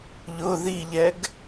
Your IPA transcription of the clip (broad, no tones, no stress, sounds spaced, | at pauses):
ʎ ʊ ð i ʎ ɛ ɡ